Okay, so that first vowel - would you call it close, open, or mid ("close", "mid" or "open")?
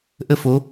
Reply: mid